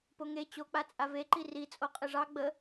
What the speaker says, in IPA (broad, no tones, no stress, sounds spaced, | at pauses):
p o ŋ e t͡ɕ o k͡p a t͡sʼ a v e ǃ i r i t͡sʼ o qʼ ɨ ʐ ɑ ɡ͡b ə